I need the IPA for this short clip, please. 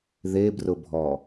ð e b r ʊ bʱ ɔ

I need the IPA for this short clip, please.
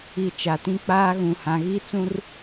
i˨ t͡ʃ a˨ t ĩ˦ k͡p aː˦ ɣ ũ˨ h ã˨ ɣ i˦ t͡s ũ˦ r

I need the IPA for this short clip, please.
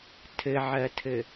tʰ ɘ ʕ ɜ tʰ ɘ

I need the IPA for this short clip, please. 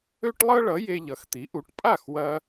ø˥ ʈ lˠ ɤ˥ ɭ ʌ˩˥ j e˧ ʎ ʌ˩˥ x t̪ i˩˥ ʔ u˩˥ ʈ pʼ a˥˩ x w ɐ˧

